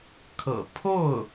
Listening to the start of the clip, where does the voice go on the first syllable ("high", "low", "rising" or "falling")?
low